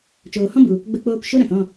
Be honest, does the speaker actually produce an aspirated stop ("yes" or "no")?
no